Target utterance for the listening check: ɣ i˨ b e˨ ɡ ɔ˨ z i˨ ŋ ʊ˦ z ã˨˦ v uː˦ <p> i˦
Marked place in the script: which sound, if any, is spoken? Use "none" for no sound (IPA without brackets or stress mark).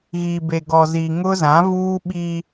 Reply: ɓ